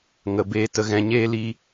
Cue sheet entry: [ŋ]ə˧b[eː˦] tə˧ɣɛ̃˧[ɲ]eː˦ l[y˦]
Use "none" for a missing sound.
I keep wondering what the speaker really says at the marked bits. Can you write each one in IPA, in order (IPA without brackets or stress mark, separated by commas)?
ŋ, eː˦, ɲ, i˦